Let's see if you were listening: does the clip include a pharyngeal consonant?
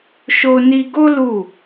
no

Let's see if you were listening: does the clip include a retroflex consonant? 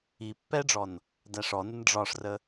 yes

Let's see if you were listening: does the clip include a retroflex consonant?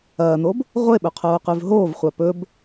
no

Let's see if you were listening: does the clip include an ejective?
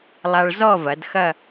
no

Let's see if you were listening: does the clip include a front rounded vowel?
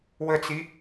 no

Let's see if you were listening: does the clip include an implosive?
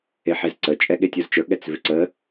yes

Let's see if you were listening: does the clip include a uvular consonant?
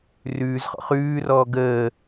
yes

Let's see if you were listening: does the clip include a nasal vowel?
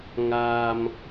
no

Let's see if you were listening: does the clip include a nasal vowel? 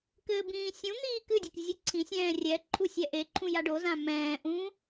yes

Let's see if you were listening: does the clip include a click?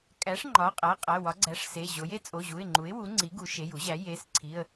yes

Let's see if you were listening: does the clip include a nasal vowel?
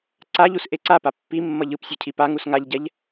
no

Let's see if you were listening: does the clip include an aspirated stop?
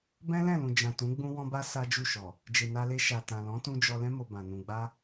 no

